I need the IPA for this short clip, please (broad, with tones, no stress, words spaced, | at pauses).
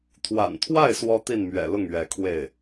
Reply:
t̪ʰwa̰˨˩nt̪ʰwa˥˩ɪ̯ swɔ˥t̪i˥˩nmɥɛ̰˨˩lʊ˥˩ŋ ɥɛ˧˥kʰwe˥˩ɪ̯